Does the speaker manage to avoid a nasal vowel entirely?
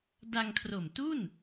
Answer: yes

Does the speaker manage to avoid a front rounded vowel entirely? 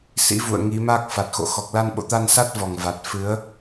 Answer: yes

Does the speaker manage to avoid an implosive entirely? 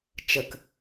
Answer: yes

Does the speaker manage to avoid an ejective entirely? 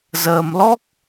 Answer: yes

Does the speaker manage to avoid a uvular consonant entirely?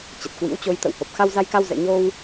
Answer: yes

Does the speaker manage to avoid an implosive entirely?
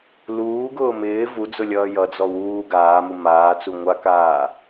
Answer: yes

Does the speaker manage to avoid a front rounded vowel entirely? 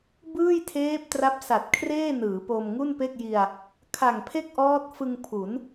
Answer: yes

